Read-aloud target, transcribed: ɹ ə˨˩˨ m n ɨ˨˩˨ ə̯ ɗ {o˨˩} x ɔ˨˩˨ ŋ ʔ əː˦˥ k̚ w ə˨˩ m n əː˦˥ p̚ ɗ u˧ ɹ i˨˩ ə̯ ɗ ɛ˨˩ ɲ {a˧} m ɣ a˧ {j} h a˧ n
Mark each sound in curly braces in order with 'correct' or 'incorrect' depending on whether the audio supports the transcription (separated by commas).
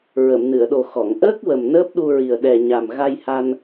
correct, incorrect, correct